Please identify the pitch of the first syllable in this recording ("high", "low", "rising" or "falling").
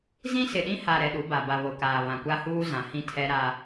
high